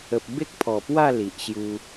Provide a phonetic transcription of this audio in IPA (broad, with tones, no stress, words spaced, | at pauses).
ə˨p̚be˦k̚ pʰɔ˨˩pwa˥˧ li˨ʔɕju˧